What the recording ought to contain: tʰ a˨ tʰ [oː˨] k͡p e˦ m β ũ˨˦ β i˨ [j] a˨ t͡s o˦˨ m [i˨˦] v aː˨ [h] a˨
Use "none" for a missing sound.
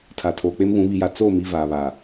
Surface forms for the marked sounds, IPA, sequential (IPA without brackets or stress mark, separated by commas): oː˨, j, i˨, β